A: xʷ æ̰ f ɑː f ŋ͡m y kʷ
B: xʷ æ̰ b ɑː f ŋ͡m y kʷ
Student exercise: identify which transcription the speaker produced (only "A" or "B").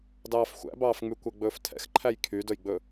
B